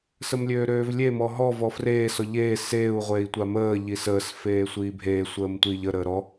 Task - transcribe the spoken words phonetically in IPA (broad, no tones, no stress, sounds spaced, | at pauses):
s ə m lʲ øː ɾ øː v lʲ e m ɔ ɦ ɔ v ɔ f r eː s ɔ ʎ eː s eː u̯ ʁʷ eː i̯ tʷ a m əː ʎ i s əː s f eː sʷ iː bʱ eː sʷ əː m tʷ i ʎ ə ɾ əː ɾ ɔ